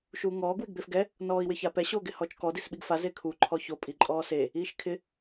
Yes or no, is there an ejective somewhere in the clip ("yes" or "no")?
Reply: yes